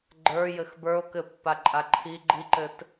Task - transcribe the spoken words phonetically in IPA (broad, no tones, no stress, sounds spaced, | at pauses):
ɡ͡ǃ ə˞ j ɘ x b ə˞ o̯ k ɘ pː a ǃʼ a ǃʰ i ɡ͡ǃ i ǃ ɘ t